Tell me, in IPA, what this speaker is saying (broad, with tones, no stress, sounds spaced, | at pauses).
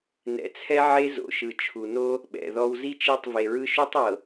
n ɛ̰˨ t͡sʰ ɛ˦ ʕ e˦ z o̰˨ ʃ ɯ˨ t͡ʃʰ u˨ n o˦ | ɓ ɛ̰˨ ð ɔ˦ w z i˦ t͡ʃ i˦˨ tˤ v e˨ ɹ ɯ˦ ʃ u˦ tˤ ɤ˨